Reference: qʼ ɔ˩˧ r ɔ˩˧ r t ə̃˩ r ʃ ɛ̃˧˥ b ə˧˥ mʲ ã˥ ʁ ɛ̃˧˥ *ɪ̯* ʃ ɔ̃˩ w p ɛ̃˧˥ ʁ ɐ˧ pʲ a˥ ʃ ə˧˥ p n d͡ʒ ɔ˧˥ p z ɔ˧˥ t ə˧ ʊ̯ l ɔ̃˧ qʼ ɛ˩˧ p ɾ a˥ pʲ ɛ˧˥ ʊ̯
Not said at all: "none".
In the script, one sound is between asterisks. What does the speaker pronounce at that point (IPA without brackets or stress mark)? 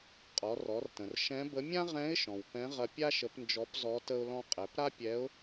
ɪ̯